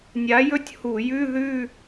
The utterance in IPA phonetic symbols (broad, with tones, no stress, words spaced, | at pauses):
nʲa˨˥jɵ˥˧tʲhu˧˩˧jʉ˧˥˧ ðʉ˥˧